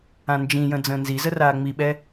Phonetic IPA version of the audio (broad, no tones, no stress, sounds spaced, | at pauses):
ã n d͡ʒ ĩ j ə̃ d͡z ə̃ː n z i z ə r aː ŋ͡m i ɓ ɛ